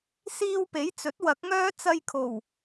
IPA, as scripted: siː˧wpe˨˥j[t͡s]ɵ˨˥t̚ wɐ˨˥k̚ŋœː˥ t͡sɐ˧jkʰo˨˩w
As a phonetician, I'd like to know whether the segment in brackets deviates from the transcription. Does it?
no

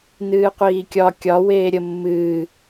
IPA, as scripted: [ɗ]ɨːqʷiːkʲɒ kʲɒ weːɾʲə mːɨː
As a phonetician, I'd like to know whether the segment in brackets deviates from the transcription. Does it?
yes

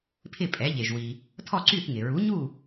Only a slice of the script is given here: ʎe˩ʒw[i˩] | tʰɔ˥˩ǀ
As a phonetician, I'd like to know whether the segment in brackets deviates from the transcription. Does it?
no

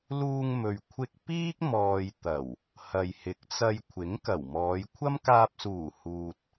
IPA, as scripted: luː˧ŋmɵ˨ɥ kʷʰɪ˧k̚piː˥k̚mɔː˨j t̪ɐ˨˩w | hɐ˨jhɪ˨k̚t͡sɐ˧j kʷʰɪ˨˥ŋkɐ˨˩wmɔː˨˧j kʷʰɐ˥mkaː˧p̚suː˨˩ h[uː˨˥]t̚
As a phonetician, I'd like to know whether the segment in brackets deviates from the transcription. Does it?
yes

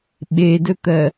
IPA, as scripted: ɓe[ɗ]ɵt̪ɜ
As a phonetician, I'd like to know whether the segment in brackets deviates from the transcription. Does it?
yes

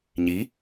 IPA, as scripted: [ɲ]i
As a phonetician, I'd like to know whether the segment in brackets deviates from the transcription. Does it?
no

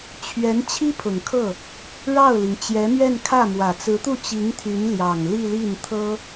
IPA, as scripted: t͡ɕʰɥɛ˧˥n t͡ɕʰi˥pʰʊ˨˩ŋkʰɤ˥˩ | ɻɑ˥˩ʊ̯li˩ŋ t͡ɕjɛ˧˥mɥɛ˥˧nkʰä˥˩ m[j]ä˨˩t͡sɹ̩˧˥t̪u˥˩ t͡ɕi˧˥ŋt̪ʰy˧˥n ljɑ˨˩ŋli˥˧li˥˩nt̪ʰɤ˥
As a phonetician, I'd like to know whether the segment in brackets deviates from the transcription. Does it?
yes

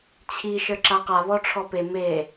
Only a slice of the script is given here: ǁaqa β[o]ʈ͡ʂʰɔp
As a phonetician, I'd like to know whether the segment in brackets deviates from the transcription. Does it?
yes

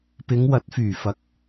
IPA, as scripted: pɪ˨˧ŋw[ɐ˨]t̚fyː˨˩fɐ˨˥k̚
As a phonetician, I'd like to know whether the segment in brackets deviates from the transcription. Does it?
yes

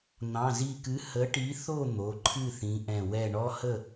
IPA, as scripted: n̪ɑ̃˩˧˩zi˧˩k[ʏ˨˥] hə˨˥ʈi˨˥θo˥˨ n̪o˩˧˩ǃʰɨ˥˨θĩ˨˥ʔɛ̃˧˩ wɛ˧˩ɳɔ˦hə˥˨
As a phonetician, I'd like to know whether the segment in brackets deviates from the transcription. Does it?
yes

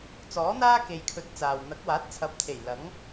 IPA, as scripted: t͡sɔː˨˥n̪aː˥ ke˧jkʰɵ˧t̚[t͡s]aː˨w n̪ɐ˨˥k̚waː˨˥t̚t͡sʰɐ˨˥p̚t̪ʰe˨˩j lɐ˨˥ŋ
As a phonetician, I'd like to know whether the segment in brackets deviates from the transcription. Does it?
no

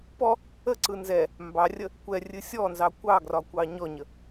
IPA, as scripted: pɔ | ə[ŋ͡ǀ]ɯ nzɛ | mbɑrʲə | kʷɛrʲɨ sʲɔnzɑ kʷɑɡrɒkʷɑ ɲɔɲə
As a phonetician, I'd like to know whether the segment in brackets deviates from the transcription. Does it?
yes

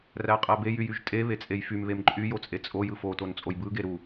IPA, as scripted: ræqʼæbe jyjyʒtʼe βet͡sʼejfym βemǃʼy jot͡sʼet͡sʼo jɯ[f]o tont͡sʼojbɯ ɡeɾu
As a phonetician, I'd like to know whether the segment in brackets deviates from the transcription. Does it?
no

